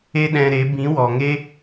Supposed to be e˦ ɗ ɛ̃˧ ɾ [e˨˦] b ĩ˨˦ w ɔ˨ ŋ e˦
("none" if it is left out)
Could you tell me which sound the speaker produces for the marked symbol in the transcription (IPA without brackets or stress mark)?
e˨˦